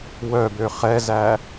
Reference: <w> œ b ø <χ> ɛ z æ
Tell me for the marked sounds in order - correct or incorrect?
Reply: correct, correct

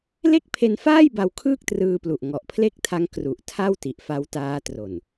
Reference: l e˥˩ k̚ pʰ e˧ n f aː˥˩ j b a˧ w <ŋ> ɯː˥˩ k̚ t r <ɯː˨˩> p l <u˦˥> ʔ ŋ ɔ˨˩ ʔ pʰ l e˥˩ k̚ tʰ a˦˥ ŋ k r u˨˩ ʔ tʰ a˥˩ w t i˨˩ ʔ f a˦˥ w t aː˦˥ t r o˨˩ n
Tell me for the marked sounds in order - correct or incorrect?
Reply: incorrect: kʰ, incorrect: ɯː˧, incorrect: u˨˩

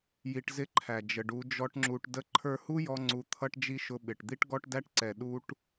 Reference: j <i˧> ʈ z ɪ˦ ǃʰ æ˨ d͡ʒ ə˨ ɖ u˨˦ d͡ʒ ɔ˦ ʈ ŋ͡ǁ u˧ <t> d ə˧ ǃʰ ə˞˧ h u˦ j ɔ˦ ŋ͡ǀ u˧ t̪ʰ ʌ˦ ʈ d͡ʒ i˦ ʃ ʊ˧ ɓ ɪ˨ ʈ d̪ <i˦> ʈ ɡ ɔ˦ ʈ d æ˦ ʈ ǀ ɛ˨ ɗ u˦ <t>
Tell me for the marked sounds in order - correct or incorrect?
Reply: correct, incorrect: ʈ, correct, incorrect: ʈ

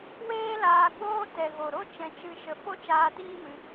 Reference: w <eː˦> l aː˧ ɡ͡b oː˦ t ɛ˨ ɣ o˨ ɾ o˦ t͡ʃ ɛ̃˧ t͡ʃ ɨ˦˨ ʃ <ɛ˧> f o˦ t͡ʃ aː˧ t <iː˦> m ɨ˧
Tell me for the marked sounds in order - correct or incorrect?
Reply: correct, incorrect: ə˧, correct

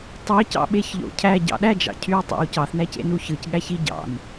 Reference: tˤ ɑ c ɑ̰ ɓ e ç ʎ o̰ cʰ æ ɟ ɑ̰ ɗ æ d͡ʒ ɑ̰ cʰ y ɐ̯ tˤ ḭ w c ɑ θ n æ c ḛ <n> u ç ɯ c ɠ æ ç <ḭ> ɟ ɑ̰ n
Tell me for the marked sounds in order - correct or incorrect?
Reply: correct, incorrect: i

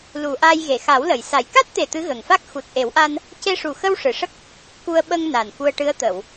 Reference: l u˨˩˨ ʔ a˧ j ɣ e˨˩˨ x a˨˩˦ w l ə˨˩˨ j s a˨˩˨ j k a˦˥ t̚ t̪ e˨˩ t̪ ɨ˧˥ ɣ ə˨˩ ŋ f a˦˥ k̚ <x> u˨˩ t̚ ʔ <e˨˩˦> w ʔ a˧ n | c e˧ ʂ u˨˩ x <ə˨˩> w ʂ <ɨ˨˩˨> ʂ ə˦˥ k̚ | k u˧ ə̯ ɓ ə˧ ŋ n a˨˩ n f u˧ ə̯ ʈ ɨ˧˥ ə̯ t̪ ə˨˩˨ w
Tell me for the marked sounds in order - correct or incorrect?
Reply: correct, correct, incorrect: ə˧, correct

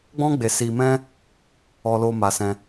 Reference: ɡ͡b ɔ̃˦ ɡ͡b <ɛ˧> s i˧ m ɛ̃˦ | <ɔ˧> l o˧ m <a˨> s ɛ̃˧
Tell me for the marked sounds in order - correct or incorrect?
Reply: incorrect: e˧, correct, incorrect: a˧

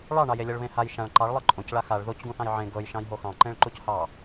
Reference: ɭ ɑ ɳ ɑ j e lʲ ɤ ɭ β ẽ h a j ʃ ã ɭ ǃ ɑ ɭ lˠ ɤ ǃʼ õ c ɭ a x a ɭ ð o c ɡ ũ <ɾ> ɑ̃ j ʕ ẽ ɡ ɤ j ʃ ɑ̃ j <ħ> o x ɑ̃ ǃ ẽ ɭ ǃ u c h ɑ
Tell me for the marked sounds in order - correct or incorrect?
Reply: incorrect: θ, incorrect: ɦ

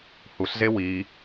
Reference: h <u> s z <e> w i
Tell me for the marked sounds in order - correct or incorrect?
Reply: correct, correct

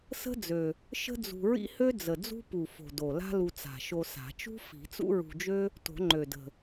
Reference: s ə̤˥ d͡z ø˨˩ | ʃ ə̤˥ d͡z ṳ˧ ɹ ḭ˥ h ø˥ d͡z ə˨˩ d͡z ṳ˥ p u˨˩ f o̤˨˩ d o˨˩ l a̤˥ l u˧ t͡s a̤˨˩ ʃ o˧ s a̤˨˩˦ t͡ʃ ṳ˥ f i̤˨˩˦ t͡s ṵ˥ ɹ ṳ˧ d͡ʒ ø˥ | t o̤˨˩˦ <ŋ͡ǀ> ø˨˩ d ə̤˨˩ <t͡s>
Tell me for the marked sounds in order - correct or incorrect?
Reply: incorrect: ŋ͡ǃ, incorrect: none

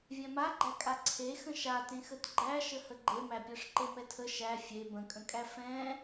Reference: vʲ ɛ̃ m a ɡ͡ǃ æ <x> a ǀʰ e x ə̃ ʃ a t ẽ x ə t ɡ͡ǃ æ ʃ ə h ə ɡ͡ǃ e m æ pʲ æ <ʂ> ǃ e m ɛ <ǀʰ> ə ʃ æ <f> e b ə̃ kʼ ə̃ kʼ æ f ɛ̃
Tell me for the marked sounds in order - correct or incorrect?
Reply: incorrect: kʼ, correct, incorrect: tʰ, incorrect: fʲ

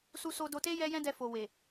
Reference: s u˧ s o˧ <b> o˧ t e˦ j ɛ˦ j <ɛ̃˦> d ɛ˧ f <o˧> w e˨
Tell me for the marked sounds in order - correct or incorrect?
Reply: incorrect: d, correct, incorrect: o˨

